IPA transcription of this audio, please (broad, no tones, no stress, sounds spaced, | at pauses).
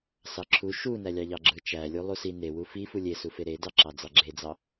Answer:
s ɑ ǁʰ u ʃ u n æ lʲ ɑ ʎ ɑ ɡ͡ǁ ɯ t͡ʃ æ lʲ u lˠ u s i n e w u f i f u lʲ e s u f e ɾ e d ɑ ǁ ɑ d͡z ɑ ɡ͡ǁ e d͡z ɑ